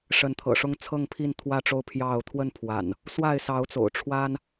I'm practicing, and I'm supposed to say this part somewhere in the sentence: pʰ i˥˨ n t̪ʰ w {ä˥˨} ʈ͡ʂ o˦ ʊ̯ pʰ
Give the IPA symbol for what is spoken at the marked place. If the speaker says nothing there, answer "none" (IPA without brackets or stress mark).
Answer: ä˥˨